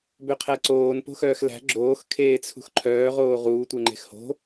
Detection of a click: present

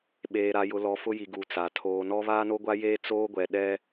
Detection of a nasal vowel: absent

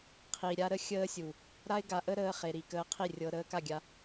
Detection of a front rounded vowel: absent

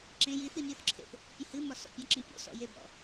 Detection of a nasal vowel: present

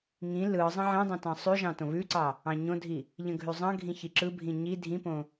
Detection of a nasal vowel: present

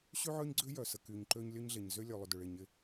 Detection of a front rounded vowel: present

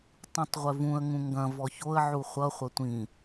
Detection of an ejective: absent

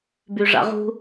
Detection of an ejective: absent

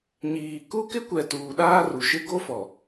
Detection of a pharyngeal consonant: absent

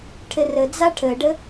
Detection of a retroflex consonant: present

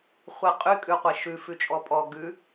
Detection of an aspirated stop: absent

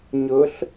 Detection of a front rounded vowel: absent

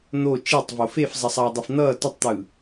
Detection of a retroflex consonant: absent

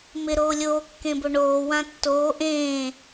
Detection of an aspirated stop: absent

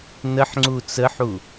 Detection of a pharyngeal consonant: present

